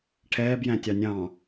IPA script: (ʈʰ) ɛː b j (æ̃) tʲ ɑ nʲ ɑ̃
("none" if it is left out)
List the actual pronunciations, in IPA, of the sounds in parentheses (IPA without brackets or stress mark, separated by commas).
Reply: ʈʰ, æ̃